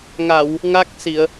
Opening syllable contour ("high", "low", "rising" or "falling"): low